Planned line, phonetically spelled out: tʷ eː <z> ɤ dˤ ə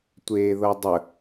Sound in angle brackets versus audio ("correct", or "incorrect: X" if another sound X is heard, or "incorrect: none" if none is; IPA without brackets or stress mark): incorrect: ð